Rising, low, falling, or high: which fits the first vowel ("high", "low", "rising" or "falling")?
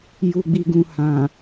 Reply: low